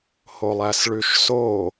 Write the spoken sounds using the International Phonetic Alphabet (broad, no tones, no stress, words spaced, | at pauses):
holˠæsɭʉʃso